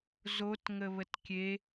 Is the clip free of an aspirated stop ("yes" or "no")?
yes